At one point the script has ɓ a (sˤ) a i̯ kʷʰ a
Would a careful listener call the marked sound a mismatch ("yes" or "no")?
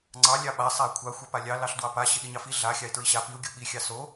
no